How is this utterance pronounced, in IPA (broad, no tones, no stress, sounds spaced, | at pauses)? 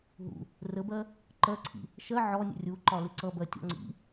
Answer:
ɦ ṵ | r ə b ɜ | ǃ ɜ ǀʰ ḭ | ʃ ɜ ʕ ɔ nʲ ə̰ rʲ u ǃ ɒ l ɪ ǀ ʌ b ɜ tʲ ɔ̰ ŋ͡ǀ ḭ